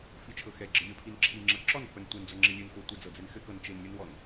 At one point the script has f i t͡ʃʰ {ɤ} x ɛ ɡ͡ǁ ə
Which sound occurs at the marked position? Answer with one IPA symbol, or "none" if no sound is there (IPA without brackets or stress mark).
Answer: ɤ